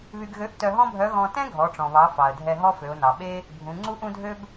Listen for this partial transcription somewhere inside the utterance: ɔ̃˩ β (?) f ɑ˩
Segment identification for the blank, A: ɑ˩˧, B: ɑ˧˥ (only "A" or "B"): A